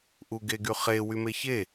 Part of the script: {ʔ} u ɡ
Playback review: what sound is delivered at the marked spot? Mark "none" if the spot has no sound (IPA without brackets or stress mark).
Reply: ʔ